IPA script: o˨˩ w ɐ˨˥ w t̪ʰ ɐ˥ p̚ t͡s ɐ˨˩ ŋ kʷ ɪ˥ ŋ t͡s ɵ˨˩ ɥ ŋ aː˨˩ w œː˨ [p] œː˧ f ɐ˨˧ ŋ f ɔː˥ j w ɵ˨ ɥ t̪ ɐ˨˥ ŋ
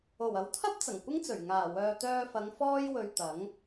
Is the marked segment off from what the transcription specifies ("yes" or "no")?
yes